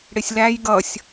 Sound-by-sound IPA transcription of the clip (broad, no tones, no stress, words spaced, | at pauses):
ɽɪsʲlæj ɡʌsʲ